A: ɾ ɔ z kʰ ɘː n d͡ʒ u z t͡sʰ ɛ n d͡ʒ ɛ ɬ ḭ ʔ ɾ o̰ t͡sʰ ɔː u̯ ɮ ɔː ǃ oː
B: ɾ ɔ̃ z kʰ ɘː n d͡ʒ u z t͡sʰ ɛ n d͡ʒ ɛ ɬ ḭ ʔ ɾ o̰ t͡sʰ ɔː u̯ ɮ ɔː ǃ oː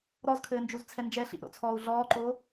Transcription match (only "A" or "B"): A